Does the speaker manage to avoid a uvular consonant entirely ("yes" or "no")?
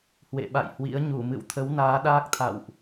yes